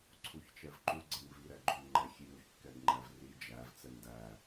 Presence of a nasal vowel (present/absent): absent